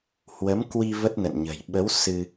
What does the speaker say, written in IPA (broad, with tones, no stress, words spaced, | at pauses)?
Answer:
hwə˨˦mkwi˧ və˦˥t̚nə̰˧˨nɲə̤˨˩j ɓə˨˦w sɨ˧